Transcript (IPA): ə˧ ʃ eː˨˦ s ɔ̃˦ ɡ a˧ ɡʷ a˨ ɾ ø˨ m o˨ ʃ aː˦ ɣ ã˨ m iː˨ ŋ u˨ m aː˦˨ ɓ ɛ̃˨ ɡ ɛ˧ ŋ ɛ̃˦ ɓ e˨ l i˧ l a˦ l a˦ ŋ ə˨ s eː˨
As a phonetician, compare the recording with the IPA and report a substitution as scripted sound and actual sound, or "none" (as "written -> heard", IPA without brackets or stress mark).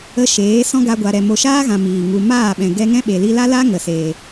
ø˨ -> ɛ˨